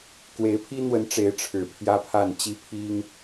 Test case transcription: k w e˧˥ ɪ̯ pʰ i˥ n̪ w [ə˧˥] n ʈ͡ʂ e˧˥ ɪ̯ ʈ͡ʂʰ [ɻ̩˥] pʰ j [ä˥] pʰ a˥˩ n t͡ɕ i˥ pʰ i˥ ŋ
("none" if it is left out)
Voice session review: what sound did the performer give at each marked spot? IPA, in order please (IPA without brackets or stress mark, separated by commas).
ə˧˥, ɻ̩˨˩, ä˥